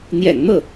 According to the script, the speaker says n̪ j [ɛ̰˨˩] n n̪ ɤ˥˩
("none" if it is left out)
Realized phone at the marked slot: ɛ̰˨˩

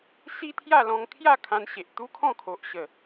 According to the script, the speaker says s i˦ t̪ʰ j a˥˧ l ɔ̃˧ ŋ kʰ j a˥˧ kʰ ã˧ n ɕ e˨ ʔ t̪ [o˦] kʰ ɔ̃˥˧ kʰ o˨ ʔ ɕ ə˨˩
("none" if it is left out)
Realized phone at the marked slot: u˦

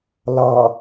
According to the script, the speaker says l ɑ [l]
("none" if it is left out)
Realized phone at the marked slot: none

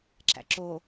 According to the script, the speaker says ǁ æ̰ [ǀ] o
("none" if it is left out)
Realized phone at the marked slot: ǁ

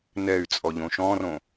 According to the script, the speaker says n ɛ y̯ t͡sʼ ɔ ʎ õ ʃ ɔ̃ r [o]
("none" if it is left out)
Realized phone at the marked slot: õ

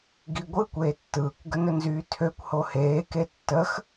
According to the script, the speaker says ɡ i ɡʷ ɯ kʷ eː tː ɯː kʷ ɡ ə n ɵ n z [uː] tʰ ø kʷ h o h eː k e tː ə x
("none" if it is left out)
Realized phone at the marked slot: yː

